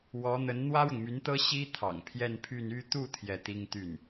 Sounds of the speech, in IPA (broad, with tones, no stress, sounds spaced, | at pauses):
w ɔ˧˥ n̪ ə˧˥ n n̪ w ä˥ ɻ ʊ˨ ŋ m y˧˥ n t̪ ɤ˥ ɕ i˥ t̪ʰ ɑ̰˨˩ ŋ pʰ j ɛ˥˧ n pʰ y˥˧ n y˥˧ t̪ u˥˧ t̪ʰ j ɛ˥˩ t̪ i˥ ŋ t̪ y˥˩ n